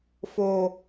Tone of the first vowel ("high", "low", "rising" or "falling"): low